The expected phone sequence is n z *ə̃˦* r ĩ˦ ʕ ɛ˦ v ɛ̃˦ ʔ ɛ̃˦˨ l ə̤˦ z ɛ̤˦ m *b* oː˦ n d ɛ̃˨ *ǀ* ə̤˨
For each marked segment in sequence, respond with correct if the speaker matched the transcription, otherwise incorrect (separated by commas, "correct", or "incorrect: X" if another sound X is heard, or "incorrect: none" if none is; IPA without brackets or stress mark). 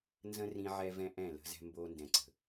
correct, correct, correct